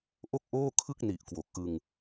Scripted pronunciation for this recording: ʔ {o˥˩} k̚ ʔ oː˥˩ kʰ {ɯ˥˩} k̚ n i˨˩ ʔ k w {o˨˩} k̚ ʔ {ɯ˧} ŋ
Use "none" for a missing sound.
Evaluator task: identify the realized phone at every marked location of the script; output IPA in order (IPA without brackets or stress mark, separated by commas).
o˥˩, ɯ˥˩, o˨˩, ɯ˧